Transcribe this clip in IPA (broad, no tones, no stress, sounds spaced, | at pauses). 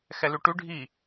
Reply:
x ɛ l ʉ ʈ ʉ ɖʱ i